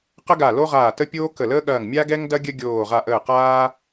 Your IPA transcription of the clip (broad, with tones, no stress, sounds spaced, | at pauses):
q ə˦ ɡ a˧˩ l o˦ ʁ aː˧˩ t ə˦ pʲ oː˦ k ə˧˩ l əː˦ ɠ ɐː˧˩ ŋ mʲ a˦ ɡ ɛ˦ ŋ d ɐ˦ ɡʲ ə˦ ɡʲ oː˧˩ ʁ a˧˩ ʔ əː˧˩ q aː˦